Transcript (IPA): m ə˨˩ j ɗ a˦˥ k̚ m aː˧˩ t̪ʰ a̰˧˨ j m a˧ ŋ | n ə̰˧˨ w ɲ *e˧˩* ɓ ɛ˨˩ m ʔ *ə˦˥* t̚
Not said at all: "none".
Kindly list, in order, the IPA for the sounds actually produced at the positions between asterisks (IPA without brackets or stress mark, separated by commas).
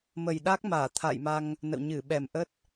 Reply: ɨ˧˩, ə˦˥